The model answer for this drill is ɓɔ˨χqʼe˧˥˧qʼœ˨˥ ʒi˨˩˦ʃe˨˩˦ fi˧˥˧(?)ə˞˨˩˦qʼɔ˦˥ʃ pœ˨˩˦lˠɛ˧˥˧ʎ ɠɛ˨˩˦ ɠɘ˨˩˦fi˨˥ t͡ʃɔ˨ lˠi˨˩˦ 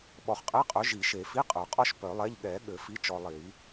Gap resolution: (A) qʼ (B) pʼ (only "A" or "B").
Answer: A